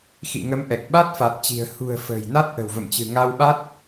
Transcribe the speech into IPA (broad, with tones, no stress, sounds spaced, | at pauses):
x ḭ˧˨ ŋ ə˨˦ m ʔ ɛ˨˩ k̚ ɓ a˦˥ t̚ f a˨˩ t̚ t͡ɕ i̤˨˩ ə̯ h ṳ˨˩ ə̯ f ə̤ː˨˩ j n a˦˥ t̚ ʔ ə̤˨˩ w v ə̰˧˨ m t͡ɕ ɨ̤˨˩ ŋ a˧ w ɓ a˦˥ t̚